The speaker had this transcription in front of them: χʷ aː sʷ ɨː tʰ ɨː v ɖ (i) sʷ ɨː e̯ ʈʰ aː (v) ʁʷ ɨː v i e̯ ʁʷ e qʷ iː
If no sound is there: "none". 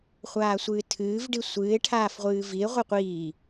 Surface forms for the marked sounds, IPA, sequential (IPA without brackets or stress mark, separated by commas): i, f